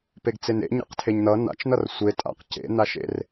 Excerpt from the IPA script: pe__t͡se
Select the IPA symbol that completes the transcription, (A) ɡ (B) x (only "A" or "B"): A